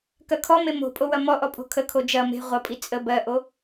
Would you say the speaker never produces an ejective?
no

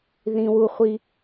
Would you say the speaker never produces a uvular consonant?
no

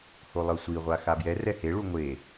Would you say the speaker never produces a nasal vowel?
yes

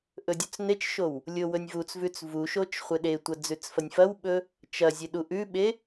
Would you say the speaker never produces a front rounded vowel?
yes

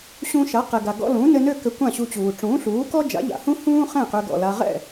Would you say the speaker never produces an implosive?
yes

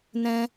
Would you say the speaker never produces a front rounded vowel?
yes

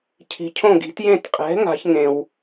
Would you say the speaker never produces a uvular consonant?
no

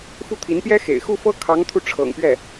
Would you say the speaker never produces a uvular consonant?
yes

